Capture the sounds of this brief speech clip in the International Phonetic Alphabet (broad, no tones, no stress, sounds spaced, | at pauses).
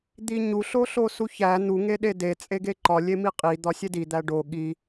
d̪ i ɲ u ɬ o ɬ o s u ç æ n̪ u ŋ e ɗ e d e t͡sʼ e ɡ e ǃ ɒ lʲ e m i qʼ i d̪ ɒ sʲ e d i d̪ æ ɖ o ɠ i